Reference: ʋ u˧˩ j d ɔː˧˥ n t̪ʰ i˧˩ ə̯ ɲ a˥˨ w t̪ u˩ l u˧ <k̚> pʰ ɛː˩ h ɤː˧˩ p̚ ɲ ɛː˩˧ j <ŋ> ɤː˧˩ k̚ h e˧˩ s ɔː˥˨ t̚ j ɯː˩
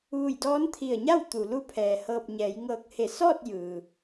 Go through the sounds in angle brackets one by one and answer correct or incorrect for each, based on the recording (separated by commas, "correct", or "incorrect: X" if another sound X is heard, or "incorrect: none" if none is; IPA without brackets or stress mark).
incorrect: none, correct